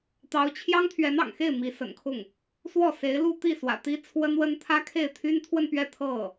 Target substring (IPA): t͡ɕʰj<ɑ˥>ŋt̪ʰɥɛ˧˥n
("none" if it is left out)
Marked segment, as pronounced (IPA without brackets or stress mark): ɑ˥